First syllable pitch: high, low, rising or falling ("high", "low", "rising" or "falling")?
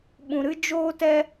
low